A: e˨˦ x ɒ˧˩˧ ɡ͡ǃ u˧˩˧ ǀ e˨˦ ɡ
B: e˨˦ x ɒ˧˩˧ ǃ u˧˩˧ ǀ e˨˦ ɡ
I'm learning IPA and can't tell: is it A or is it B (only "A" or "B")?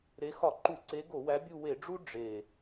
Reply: B